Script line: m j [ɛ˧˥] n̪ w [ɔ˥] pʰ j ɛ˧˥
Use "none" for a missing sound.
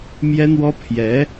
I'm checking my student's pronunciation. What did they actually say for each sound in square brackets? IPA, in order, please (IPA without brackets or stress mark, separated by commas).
ɛ˥, ɔ˥